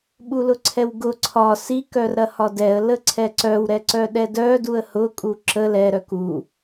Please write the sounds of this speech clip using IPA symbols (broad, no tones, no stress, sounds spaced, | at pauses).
ɓ u l ʊ ǀʰ ɛ w ɡ ʊ ǀʰ ɒ s i k œ r ɾ ɐ h ɒ d ɛ ə̯ l ə ǀʰ ɛ ǀ œ w ɾ ɛ ǀ œ ɗ ɛ d œ d u ə̯ h ʊ kʼ u ǁ ə l ɛ ɾ œ k u